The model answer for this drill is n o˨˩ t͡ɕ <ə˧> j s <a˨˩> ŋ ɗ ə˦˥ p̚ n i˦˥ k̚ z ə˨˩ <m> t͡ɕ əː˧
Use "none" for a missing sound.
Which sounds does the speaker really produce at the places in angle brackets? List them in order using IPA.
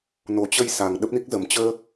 ə˧, a˨˩, m

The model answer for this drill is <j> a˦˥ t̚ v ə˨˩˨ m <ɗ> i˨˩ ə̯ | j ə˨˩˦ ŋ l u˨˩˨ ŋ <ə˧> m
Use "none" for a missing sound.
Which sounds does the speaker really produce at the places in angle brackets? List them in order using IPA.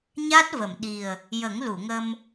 ɲ, ɗ, ə˧

